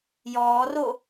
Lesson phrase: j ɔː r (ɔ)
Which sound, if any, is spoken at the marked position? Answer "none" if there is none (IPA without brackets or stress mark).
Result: o